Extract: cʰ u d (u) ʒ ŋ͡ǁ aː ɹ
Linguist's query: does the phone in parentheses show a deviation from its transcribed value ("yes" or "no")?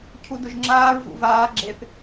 yes